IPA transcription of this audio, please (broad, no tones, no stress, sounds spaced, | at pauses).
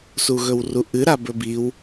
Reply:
s u ɣ ɵ w r u ʔ ɨ ɾ a b ɵ b i w